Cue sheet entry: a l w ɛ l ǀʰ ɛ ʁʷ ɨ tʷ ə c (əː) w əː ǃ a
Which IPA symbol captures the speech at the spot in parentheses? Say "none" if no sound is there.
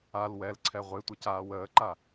aː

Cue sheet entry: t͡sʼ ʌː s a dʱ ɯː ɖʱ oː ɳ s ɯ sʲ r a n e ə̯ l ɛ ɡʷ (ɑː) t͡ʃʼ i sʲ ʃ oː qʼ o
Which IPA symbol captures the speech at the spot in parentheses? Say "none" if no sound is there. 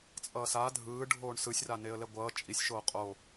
ʌː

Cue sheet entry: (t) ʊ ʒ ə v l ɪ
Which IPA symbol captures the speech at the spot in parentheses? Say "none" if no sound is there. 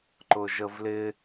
ǃ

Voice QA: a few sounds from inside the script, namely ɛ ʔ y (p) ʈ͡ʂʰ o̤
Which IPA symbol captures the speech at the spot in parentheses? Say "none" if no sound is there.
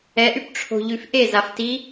p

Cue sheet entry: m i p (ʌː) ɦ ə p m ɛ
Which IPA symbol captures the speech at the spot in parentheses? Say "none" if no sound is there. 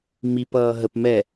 ʌː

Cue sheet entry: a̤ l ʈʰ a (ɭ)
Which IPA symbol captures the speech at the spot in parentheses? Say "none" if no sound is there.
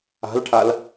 l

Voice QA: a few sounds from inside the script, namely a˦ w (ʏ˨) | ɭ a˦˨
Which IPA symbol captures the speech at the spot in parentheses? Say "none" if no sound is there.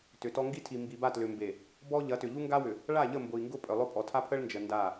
ʏ˨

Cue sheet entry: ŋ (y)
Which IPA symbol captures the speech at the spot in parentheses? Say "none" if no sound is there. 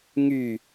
y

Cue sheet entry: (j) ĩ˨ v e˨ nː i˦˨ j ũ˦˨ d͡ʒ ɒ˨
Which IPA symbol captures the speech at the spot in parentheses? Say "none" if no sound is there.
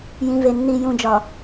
j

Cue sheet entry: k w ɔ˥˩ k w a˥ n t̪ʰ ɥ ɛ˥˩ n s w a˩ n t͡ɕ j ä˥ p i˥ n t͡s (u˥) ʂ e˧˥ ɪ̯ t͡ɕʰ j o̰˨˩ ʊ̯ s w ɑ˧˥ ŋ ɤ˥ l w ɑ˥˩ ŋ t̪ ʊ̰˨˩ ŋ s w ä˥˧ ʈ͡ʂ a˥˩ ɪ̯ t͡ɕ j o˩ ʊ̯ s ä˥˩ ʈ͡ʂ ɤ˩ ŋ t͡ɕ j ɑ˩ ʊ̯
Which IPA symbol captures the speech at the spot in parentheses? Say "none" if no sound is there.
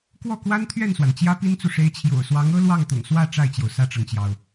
u˨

